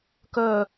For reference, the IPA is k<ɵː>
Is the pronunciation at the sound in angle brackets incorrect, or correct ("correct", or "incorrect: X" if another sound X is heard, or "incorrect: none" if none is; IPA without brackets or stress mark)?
correct